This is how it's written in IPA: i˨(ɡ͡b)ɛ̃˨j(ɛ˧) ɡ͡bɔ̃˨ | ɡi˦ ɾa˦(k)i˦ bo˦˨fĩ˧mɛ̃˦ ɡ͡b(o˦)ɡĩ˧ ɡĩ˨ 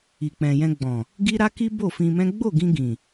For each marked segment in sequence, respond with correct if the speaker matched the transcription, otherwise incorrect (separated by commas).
incorrect, incorrect, correct, incorrect